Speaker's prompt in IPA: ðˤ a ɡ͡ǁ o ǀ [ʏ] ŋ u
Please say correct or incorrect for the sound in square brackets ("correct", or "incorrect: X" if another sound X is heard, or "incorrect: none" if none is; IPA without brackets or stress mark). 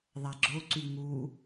incorrect: y